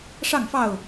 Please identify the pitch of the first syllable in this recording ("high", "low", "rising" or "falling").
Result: falling